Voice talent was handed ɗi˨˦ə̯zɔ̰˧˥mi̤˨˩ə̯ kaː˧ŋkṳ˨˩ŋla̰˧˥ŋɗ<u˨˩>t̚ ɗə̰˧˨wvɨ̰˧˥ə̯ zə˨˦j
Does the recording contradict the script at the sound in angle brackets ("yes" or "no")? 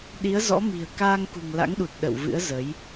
no